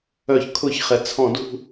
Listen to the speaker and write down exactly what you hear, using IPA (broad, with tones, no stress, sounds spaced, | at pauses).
œ˧˩˧ ç kʰ ʊ˧˩˧ ç χ ɛ˩ t͡sʰ ɔ̃˧˩˧ d ṳ˦˨